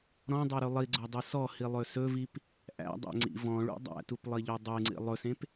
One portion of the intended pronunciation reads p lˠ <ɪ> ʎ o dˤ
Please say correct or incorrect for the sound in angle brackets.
incorrect